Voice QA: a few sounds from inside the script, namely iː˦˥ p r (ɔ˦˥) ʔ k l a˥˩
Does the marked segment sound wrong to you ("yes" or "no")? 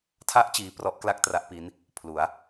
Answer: no